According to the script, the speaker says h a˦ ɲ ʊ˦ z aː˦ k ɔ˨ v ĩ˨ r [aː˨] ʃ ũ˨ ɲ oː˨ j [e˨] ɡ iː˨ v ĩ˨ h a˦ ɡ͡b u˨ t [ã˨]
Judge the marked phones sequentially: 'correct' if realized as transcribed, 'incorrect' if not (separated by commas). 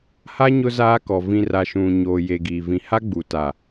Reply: incorrect, correct, incorrect